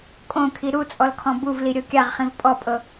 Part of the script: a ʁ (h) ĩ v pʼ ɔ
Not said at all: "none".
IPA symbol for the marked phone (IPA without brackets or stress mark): χ